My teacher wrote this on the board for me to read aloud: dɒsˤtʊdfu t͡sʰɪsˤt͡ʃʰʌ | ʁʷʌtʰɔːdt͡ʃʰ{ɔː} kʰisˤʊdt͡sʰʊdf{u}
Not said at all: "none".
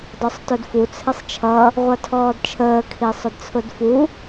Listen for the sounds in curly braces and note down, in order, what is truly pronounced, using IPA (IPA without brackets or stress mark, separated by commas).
əː, u